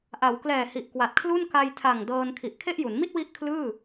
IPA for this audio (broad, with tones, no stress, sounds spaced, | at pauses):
ʔ a˩˦ w k l ɛː˨˩ h i˨˩ ʔ k w a˨˩ t̚ kʰ l u˥˩ n k a˧ j tʰ a˨˩ ŋ d ɤː˧ n kʰ i˨˩ ʔ kʰ e˥˩ ʔ j u˩˦ n m i˥˩ t̚ w i˦˥ ʔ kʰ l ɯː˥˩